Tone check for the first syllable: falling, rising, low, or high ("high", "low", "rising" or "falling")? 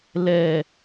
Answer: low